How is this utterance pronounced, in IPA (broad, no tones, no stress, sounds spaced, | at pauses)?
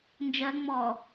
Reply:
n d͡ʒ ɜ ŋ͡m ɔ